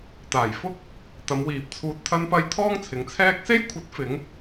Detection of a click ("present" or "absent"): absent